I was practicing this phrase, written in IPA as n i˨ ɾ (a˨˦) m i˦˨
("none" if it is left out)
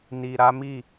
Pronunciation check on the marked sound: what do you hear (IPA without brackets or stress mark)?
a˨˦